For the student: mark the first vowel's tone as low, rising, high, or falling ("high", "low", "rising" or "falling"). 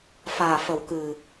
low